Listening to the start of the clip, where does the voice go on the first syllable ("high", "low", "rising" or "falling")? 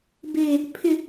high